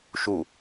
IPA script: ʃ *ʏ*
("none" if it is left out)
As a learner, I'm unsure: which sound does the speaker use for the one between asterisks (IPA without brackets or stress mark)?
u